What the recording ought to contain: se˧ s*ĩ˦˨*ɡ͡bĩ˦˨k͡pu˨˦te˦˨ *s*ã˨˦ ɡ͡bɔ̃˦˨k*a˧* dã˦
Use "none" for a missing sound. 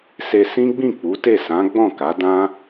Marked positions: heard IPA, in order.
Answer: ĩ˦, s, a˨˦

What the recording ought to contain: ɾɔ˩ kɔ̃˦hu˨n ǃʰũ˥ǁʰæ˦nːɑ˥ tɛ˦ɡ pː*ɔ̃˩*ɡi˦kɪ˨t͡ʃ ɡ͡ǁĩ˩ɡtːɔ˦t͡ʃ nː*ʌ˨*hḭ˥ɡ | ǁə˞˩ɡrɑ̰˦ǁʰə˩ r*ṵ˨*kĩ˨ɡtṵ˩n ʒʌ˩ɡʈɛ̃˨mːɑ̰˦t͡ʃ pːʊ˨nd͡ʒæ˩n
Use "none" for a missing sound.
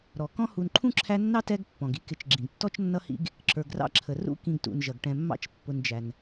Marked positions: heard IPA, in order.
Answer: ɔ̃˩, ʌ˥, ṵ˦

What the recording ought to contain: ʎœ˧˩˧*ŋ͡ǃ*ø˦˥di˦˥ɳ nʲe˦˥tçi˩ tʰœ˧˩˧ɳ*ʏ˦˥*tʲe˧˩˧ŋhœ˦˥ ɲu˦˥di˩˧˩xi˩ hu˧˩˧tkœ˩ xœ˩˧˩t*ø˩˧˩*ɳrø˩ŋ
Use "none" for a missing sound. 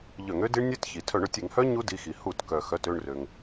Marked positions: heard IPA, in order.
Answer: ŋ, ʏ˩, ø˦˨

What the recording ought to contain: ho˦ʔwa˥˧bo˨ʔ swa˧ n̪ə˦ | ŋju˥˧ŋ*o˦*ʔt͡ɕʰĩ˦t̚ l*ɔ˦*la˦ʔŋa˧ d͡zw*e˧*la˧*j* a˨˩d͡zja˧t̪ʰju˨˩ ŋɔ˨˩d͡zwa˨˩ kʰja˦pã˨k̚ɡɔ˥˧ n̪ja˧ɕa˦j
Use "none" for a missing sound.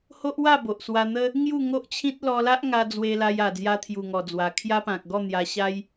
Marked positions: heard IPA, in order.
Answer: o˦, ɔ˧, e˧, j

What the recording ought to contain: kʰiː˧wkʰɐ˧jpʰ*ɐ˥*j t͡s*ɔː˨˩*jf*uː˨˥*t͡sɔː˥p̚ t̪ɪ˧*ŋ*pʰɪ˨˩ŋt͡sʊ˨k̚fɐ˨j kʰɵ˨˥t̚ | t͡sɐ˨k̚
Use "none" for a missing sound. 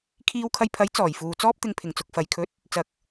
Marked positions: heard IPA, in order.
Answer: ɐ˨˥, ɔː˨˩, uː˨, ŋ

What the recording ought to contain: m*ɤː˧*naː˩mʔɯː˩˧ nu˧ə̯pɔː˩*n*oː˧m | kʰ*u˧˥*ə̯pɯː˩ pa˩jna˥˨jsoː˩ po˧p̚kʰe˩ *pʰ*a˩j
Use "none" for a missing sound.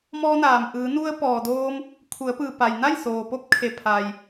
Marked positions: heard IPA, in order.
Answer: ɔː˧, d, u˩˧, pʰ

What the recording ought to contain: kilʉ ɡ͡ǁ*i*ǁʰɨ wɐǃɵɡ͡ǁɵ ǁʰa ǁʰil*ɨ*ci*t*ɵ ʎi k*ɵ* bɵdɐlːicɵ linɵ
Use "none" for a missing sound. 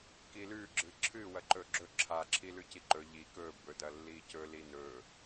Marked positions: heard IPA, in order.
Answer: ɨ, ʉ, ǃ, ɵ

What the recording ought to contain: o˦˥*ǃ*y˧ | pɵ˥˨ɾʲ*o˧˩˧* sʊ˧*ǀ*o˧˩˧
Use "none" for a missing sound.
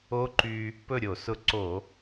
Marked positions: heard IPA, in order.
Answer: ǃ, o˧˩˧, ǀ

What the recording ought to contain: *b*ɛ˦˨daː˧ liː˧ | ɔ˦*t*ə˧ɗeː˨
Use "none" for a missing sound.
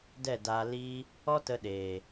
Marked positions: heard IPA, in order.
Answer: d, t

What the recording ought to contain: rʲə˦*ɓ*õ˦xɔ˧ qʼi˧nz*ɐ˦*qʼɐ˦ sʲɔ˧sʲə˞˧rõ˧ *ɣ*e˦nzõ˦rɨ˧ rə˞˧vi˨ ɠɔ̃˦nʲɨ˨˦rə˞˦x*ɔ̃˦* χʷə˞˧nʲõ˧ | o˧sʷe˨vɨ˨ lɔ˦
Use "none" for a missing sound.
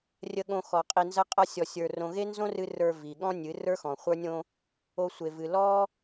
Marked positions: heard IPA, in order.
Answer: ɠ, ɐ˦, ɣ, ɔ̃˨

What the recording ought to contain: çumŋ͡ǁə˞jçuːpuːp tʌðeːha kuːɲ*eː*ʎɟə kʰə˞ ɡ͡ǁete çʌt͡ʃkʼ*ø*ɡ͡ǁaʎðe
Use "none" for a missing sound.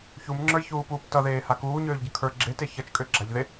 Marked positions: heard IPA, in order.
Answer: øː, ø

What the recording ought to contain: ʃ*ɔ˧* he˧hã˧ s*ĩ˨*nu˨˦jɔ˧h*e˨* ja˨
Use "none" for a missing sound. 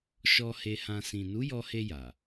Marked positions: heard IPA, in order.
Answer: ɔ˧, ĩ˨, e˧

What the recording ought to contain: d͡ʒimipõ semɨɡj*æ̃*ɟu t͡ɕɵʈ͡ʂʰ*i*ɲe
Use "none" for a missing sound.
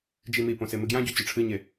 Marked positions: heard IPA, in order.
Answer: ã, ɨ

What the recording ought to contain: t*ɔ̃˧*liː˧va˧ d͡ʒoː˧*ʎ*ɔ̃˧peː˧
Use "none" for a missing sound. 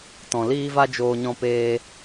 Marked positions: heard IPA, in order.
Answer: ɔ̃˨, ɲ

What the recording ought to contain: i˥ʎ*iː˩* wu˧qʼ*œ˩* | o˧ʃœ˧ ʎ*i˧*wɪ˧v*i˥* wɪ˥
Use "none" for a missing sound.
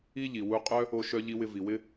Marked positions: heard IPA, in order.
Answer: i˩, œ˥, i˧, i˩

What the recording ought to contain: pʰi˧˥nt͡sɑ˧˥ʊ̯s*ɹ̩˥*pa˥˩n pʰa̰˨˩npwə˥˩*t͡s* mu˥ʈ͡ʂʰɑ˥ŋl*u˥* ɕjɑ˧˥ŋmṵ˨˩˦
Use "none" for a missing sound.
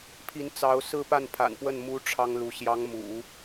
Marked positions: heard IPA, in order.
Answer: ɹ̩˥, n, u˧˥

